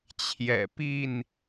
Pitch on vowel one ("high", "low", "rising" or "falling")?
low